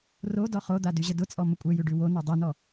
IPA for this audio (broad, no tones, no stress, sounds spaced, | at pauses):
r o d ɔ χ o d̪ a d y ʑ ə d ʊ t͡sʼ ɔ m ə kʷʼ ɛ j ʉ ɖ ʉ w o n o dˤ i n ɔ